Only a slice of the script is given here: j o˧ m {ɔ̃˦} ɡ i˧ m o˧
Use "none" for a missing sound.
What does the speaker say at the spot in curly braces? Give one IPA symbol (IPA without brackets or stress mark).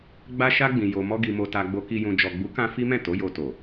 ɔ˦